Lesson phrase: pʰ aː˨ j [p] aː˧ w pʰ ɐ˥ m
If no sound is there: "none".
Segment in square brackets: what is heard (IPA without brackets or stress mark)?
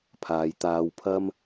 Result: t̪